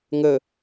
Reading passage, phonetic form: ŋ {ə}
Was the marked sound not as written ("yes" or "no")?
no